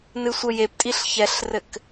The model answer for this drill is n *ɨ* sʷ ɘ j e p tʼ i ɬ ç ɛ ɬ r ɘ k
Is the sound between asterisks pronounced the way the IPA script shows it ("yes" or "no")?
yes